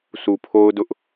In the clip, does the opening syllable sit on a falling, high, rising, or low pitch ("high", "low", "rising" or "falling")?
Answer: low